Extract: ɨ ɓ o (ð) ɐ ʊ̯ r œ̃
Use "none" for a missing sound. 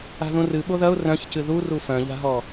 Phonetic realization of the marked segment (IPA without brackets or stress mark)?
ð